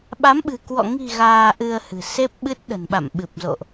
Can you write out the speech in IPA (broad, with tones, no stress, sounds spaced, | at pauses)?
ɓ a˨˦ m ɓ ɨ̤˨˩ k w ɔ̰˧˨ ŋ i̤˨˩ ɣ aː˧ ʔ ɨ˧ ə̯ h ɨ̤˨˩ s e˦˥ p̚ ɓ ɨ˦˥ t̚ ɗ ə̤˨˩ n ɓ a̰˧˨ m ɓ ɨ˨˩ p̚ z o̰˧˨ ʔ